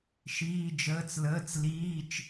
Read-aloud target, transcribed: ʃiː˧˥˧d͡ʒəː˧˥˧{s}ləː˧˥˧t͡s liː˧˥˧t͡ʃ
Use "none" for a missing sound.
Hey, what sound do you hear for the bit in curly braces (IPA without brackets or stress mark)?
t͡s